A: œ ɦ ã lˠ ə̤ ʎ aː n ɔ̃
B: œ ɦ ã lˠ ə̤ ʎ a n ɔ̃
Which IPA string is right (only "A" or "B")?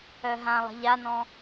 B